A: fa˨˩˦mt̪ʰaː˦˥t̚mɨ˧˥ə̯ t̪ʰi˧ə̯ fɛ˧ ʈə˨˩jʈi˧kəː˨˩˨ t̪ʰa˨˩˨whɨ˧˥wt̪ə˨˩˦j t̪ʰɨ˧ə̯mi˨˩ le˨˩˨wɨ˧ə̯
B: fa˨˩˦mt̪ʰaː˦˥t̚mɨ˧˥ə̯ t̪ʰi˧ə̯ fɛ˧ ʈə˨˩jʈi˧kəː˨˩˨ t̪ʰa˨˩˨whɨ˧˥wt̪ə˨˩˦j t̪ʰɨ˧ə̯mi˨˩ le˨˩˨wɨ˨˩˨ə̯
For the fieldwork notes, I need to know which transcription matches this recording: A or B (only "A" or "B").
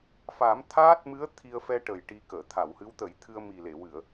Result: B